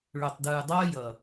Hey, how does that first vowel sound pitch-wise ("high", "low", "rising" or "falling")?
low